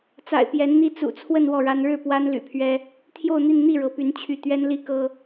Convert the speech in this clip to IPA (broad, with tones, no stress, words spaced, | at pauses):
t͡sa̰˨˩ɪ̯pjɛ˧˥nn̪i˥ t͡sṵ˨˩t͡sʰwə˥˧n wɔ˥˩ɻa˥n ɻɻ̩˥˩ pwa˥nly̰˨˩pʰɥɛ˥ | t̪ʰjo˥˧ʊ̯n̪i˥˧n n̪i˥˩ɻɤ˧˥py˧˥n t͡ɕʰy˥˩ t̪ɥɛ˥nli˥ kɤ˥